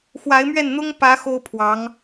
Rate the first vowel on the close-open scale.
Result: open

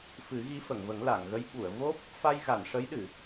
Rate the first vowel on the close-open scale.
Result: close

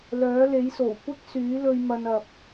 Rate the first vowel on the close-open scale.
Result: mid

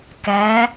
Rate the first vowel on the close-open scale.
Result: open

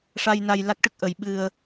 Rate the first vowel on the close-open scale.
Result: open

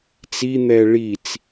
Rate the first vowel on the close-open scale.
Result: close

